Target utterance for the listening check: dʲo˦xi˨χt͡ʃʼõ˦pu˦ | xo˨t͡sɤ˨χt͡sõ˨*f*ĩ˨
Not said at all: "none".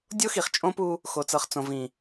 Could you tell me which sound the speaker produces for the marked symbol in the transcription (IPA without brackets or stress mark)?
v